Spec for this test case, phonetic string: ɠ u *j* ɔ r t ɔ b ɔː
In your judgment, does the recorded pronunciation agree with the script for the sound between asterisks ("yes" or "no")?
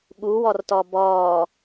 no